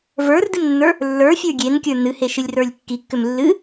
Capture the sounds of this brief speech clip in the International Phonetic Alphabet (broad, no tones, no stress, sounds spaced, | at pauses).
v ə˞ r d ɨ m nː ə˞ | lː ə˞ fʲ ə˞ ɡʲ e n kʲ ə˞ n ɨ h e ʃ ɨ lʲ r ə˞ lʲ kː i kː ʏ m lː ɨ